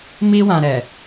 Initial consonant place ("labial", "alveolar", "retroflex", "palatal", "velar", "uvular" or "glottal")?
labial